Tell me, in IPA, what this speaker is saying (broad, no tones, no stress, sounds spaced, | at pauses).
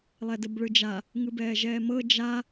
lˠ ɛ d ə b ɭ ɯ d͡ʒ a | ŋ ɯ b ɛː ʒ ɛː m ɤ d͡ʒ a